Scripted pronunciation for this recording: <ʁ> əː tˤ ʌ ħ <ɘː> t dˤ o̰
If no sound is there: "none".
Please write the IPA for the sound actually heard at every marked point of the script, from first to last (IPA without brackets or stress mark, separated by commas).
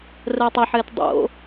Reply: r, ɘː